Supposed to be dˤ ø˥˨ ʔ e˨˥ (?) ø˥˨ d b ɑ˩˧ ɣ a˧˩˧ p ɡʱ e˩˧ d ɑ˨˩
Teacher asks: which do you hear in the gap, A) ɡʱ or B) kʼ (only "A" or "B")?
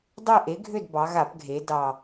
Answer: A